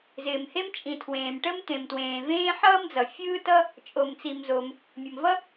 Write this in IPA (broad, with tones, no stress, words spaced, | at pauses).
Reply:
zɪː˩mhe˥m t͡ʃʼĩ˩ tʰwẽː˩mʈə˥m t̪ẽ˩mtwẽː˩vẽː˥ ħʌː˥md͡zʌ˩ fʲɯː˥tʌ˥ | t͡ʃʼo˩mt͡si˩mzo˩m | mʲə˩mvʌ˥